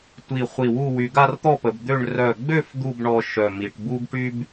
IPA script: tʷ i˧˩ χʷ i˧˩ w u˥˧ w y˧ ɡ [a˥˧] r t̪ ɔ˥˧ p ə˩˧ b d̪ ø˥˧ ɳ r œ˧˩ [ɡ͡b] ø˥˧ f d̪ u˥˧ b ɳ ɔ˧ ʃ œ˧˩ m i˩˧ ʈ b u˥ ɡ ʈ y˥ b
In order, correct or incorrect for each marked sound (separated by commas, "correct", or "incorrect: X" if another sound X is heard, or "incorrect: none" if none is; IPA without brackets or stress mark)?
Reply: correct, correct